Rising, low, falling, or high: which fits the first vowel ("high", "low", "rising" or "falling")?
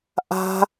high